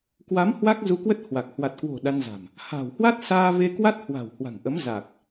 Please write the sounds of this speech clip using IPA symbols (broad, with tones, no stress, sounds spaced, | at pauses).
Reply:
k w a˨˦ m h w a˦˥ k̚ z u˧ k w ə˦˥ t̚ h w a˨˩ k̚ h w a˨˩ t̚ k w o̤˨˩ ɗ a˧ n z a̤˨˩ m | h a̤˨˩ w h w a˦˥ t̚ s aː˧ v e˧ k w a˦˥ t̚ h w a̤˨˩ w h w a̤˨˩ ŋ ʔ ə˨˦ m z a˨˩ k̚